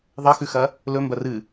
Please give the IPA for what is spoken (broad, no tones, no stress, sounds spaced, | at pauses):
ðˤ ɐ x ʉ x ɐ | l ɵ m b ɐ r ɨ